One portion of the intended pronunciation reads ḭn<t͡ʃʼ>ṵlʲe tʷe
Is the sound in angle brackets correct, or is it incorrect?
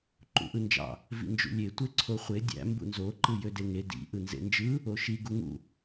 incorrect: d͡ʒ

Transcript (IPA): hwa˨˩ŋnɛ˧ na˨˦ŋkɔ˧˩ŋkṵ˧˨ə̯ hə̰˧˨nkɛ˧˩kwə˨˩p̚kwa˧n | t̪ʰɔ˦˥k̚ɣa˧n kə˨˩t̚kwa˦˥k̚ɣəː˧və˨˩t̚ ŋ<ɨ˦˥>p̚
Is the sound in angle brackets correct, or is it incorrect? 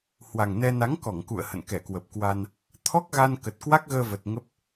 incorrect: ə˦˥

